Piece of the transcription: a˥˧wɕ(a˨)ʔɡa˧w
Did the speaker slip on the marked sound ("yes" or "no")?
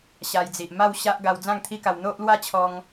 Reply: yes